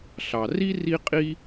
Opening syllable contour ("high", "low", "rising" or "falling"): low